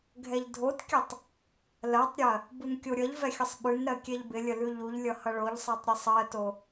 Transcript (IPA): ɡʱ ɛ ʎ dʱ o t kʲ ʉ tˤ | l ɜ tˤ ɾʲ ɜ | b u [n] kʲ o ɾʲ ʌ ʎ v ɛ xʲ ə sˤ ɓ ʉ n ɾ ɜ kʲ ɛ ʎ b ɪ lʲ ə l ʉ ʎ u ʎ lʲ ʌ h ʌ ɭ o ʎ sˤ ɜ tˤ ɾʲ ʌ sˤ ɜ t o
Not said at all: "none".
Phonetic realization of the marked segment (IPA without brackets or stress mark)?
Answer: n